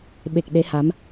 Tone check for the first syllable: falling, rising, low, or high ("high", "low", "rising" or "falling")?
low